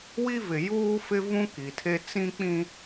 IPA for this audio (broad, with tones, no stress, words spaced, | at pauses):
wi˦vɪ˨ juː˦fɪ˦ vũ˦ ki˨tʰe˦ t͡sĩ˦k͡pĩ˦